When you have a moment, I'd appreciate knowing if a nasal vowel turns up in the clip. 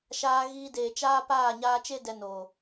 no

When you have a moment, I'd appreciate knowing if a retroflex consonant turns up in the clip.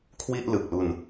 no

